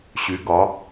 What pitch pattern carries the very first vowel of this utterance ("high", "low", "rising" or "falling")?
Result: rising